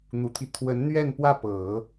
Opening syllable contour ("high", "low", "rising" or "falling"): low